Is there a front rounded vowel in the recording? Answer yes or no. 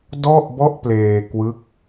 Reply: no